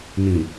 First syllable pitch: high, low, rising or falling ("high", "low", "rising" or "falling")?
low